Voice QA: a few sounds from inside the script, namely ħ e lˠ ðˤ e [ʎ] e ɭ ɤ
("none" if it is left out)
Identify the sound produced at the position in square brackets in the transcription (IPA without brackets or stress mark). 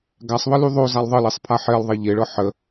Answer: ʎ